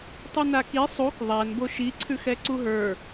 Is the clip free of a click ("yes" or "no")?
no